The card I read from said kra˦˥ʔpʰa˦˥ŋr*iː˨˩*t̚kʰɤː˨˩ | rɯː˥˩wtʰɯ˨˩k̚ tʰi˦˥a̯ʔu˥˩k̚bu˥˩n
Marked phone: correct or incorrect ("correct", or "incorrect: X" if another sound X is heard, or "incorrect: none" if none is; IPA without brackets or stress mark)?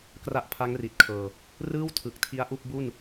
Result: incorrect: i˨˩